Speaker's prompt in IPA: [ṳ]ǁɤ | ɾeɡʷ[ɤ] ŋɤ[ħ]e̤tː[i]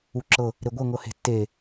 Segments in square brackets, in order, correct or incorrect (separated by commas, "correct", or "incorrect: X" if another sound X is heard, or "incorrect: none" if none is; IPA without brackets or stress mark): incorrect: u, correct, incorrect: h, incorrect: e